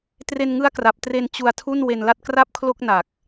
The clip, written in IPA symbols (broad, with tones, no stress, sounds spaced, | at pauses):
t r e˧ n ŋ ɯ˦˥ a̯ k r a˨˩ p̚ t r e˧ n t͡ɕ u˧ a̯ tʰ u˥˩ n w e˧ n l a˥˩ t̚ k r a˥˩ p̚ kʰ l o˥˩ k̚ n a˨˩ k̚